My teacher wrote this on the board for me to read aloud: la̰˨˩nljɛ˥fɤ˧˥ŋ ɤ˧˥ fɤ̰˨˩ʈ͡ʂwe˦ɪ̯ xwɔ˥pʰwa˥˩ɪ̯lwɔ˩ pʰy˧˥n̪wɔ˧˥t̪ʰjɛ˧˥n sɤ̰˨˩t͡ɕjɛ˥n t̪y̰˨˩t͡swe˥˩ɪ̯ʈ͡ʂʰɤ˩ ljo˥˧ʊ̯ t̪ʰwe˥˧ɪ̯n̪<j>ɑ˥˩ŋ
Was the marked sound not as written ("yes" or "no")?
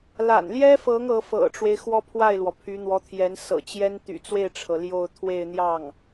no